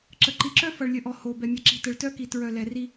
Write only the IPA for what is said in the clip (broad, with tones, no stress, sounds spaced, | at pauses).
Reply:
ǁ ə˨ ǃ i˨ ǁ œ˦ f ʌ˨ ɭ lʲ ə˨ ʔ ɔ˨ h o˨ b ɛ˨ mʲ ʌ˨ ǁ i̤˨ t ə˨ ɭ t œ˦ k i˨ t ɹ œ˨ l ɛ˨ r i˦